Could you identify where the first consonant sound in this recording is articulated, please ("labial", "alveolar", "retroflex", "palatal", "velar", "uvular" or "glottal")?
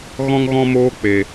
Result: velar